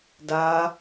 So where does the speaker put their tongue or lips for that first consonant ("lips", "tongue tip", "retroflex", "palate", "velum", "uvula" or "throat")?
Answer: tongue tip